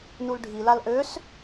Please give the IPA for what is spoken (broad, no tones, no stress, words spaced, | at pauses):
nulɖʱilal ʔøs